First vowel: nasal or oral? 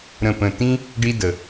nasal